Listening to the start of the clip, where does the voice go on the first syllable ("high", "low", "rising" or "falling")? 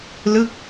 falling